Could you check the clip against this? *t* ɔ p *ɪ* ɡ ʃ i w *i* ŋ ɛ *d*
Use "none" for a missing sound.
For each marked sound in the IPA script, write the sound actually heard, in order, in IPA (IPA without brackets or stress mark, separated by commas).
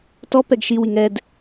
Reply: t, ɛ, i, d